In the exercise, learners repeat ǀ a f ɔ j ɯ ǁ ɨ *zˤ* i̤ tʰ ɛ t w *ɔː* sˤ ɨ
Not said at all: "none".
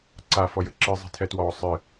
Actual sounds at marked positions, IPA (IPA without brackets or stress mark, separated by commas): zˤ, ɔː